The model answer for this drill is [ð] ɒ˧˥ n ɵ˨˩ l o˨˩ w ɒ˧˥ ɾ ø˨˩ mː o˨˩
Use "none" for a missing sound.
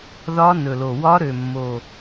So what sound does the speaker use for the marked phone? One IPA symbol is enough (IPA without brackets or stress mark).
ð